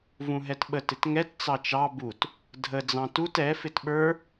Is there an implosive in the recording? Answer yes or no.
yes